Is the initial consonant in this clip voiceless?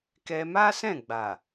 yes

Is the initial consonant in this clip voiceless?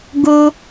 no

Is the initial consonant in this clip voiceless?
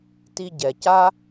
yes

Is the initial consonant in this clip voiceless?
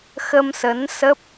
yes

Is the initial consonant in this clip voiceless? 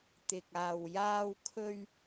yes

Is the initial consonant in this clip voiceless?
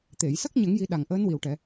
yes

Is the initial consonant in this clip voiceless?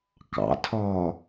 yes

